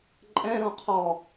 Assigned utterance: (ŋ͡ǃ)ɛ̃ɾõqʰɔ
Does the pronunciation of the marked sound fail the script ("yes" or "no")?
yes